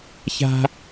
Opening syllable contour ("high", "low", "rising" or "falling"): high